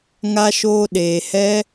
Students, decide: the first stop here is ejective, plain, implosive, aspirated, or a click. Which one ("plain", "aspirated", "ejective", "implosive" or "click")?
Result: implosive